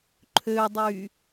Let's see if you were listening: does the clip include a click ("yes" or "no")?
yes